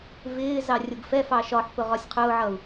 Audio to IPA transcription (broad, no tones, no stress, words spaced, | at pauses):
vɪː zɑrʲʊɡfɛfɑ ʃɒħpʊ ʁɒsʲqʰʊːʕʌːu̯